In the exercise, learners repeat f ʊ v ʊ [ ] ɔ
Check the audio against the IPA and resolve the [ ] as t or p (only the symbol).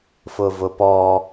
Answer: p